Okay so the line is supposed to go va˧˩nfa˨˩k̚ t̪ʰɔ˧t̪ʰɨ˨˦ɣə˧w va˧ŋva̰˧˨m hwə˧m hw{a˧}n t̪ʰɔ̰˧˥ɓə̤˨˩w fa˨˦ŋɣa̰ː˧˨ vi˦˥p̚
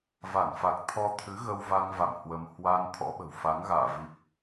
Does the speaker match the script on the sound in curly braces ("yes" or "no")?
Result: yes